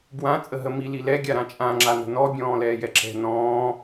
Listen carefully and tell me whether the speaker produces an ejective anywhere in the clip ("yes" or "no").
yes